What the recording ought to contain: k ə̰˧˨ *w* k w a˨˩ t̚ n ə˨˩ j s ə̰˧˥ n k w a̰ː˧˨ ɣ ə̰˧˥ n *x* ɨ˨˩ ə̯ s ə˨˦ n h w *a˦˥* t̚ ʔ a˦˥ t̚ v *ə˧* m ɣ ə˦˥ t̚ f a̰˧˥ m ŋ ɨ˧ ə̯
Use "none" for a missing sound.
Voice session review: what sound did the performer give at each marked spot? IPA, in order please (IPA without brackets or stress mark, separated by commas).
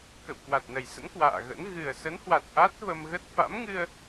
w, ɣ, a˨˩, ə˧